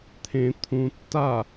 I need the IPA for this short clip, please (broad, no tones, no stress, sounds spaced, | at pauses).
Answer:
t̪ʰ ẽ t̪ʰ ũ tː a